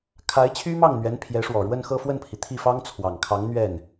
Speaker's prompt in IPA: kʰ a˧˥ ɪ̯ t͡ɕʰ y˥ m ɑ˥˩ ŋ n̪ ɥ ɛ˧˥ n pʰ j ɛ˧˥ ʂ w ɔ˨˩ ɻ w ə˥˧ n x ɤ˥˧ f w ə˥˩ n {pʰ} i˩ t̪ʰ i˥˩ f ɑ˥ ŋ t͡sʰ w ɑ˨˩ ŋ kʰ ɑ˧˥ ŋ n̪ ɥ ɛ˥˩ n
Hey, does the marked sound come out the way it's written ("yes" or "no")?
yes